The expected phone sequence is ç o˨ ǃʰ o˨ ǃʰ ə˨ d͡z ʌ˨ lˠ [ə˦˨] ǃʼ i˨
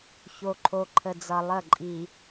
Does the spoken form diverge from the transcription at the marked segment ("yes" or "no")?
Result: no